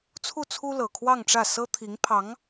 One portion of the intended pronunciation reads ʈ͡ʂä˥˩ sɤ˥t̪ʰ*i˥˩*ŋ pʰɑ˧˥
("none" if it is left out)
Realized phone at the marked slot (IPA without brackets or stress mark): i˧˥